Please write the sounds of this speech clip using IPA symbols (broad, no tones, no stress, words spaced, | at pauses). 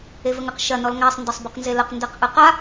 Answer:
evəŋəq ʃɐ nɔlŋasˤ ndɐsˤbəqnzeləq ndɛqʔɨqa